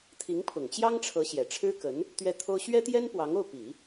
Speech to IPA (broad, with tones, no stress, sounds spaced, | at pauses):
t̪ʰ i˧˥ ŋ pʰ ʊ˨˩ ŋ t͡ɕ j ɑ˥ ŋ ʈ͡ʂʰ ɤ˧˥ ɕ j ɛ˨˩ ʈ͡ʂʰ ɻ̩˥ k ə˧˥ n | t̪ ɥ ɛ˥˩ t̪ʰ o˥ ʊ̯ ɕ ɥ ɛ˥ t̪ j ɛ˥ n p w ɑ˧˥ ŋ o˥˩ ʊ̯ p i˨˩˦